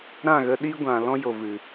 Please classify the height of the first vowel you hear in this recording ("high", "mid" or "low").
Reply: low